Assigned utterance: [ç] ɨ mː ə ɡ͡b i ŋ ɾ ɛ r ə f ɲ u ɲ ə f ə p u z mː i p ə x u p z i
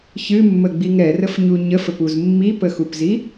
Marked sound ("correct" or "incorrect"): correct